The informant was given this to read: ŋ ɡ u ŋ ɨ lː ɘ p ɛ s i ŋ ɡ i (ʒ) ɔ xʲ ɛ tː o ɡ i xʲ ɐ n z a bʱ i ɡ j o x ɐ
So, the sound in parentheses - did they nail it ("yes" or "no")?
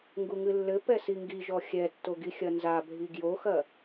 yes